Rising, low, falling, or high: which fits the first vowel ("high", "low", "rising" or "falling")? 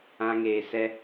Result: high